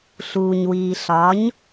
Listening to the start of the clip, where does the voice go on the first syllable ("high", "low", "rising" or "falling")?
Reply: low